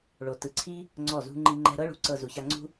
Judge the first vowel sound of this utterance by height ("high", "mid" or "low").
mid